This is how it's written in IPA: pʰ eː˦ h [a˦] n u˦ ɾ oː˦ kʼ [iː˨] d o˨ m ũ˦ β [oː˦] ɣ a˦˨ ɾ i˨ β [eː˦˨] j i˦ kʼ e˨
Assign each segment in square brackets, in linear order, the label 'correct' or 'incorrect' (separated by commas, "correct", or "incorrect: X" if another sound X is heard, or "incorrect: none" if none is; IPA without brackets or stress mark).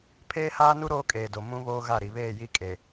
incorrect: aː˦, incorrect: eː˨, correct, correct